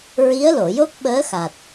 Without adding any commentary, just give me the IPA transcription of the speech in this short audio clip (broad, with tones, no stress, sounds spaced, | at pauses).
ɹ i˧˥ ə̯ l o˨˩˨ j o˦˥ k̚ ɓ əː˧˥ x a˨˩ t̚